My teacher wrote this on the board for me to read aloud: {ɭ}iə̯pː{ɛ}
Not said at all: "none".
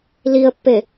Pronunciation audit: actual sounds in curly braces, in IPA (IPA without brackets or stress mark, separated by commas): l, e